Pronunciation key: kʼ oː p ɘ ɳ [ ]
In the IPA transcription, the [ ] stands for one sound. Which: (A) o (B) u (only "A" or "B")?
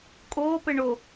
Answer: A